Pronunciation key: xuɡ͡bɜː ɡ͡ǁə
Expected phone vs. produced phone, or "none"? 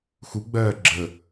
none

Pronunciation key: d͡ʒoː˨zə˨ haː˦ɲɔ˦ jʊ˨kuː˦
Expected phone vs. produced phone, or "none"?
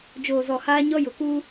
ə˨ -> ɔ˨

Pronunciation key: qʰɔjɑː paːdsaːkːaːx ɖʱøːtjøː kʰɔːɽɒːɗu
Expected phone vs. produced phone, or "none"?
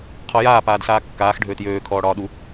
ɑː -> aː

